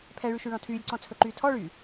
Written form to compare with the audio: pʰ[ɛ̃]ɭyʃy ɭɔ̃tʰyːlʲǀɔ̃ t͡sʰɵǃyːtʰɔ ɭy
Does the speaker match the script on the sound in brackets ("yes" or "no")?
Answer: no